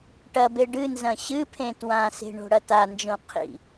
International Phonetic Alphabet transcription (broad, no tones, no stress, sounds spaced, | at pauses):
ʈ ɐ b e ɖ ɨ n z ɐ̃ ɕ ɨ pʰ ẽ t w ã s e̤ ɳ o̤ ɽ ɐ t a n d͡ʒ õ qʰ ḭ